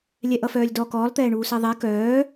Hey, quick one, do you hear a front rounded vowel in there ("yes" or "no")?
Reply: yes